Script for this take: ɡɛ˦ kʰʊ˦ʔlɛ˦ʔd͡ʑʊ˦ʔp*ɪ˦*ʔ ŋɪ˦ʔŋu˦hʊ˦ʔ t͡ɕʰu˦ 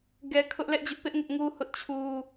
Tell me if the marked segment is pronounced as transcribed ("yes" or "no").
yes